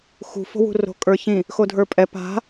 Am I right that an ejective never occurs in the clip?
no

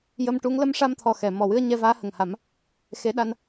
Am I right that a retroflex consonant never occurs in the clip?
no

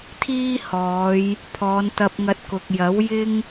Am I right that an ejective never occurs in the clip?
yes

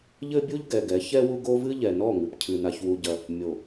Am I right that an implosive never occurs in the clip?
yes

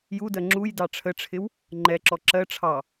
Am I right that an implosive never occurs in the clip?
yes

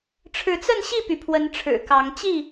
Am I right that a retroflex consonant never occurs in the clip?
no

